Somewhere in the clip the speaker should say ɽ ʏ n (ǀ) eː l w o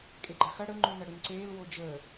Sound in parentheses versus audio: correct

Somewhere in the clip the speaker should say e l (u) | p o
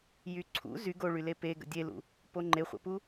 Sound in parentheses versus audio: incorrect: ṵ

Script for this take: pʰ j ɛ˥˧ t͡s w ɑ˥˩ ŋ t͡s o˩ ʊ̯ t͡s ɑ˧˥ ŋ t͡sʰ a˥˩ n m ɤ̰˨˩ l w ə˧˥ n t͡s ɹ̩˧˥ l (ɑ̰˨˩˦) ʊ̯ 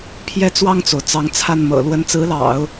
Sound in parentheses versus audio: correct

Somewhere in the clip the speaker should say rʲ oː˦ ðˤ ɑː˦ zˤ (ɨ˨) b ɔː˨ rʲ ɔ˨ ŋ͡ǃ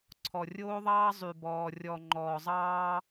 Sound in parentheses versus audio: incorrect: y˨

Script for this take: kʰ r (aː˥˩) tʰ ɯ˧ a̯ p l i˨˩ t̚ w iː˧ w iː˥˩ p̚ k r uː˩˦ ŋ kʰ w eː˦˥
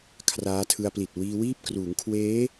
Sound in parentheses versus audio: incorrect: aː˦˥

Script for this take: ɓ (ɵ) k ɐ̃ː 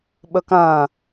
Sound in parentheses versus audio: correct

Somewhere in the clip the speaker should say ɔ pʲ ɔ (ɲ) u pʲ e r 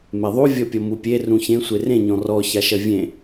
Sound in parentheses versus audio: incorrect: m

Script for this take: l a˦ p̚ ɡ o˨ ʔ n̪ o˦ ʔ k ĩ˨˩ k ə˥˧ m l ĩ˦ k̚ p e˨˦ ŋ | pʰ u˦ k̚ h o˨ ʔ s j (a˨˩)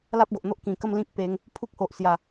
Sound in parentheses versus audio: correct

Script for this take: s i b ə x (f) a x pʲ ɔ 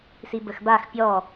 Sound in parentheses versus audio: incorrect: b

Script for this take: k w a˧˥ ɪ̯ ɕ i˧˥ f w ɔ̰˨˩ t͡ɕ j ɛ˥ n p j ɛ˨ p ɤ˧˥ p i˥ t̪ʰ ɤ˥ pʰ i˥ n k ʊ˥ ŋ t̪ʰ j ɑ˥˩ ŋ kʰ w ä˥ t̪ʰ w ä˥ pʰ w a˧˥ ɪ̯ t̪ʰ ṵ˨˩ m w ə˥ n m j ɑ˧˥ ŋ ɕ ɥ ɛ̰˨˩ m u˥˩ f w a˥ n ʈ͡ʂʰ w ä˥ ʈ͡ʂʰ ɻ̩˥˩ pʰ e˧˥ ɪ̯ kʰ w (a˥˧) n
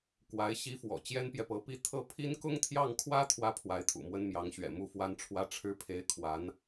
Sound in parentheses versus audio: incorrect: a˧˥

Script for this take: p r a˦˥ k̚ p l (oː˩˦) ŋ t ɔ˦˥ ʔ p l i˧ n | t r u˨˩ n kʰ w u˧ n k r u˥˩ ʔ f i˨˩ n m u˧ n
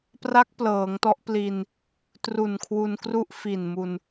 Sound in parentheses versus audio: incorrect: ɤː˩˦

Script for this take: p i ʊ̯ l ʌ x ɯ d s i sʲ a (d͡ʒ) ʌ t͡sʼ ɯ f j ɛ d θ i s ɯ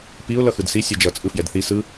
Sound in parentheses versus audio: correct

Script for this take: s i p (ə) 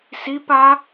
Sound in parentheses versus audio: incorrect: a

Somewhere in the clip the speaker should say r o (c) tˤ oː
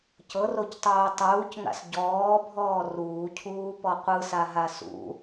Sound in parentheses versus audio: correct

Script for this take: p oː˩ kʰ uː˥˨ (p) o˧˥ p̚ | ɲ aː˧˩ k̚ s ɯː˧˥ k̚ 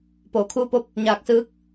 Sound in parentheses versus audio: correct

